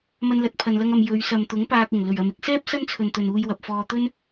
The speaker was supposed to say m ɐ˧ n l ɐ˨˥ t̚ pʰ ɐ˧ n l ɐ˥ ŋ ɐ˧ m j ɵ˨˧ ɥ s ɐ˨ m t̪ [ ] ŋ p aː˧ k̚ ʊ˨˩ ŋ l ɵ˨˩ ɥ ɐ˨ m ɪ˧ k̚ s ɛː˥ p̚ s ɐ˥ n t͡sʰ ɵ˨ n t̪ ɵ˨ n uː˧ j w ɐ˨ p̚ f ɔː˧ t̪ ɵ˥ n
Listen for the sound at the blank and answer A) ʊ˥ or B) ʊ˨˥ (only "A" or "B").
B